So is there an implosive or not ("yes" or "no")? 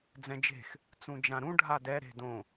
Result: no